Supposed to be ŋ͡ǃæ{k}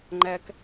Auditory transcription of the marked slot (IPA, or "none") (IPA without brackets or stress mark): k